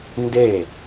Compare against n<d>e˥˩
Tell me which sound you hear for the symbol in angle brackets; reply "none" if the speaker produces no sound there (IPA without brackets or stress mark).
d